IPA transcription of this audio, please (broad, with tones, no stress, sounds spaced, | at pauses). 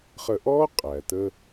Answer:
χ ə˧ ʔ ɔ˥ qʼ æ˩ t ə˧